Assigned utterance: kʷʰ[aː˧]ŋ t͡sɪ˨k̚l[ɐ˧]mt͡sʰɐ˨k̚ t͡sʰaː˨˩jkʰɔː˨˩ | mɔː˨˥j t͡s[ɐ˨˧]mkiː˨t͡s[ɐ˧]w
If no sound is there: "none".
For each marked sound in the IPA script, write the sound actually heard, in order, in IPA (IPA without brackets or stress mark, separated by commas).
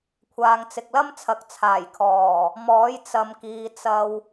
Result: aː˧, ɐ˥, ɐ˨, ɐ˧